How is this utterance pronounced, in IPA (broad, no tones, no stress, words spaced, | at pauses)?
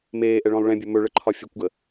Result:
meːʔɛɭɔ̃lˠ ɭɛ̃bʲɵ mɵɭəǃʰɒ fʲɵkʷɡə